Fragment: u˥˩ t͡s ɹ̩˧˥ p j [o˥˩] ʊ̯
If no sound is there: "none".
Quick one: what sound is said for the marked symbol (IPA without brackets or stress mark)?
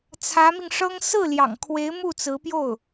o˥˩